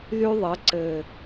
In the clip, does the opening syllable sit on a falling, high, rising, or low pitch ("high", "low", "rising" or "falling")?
high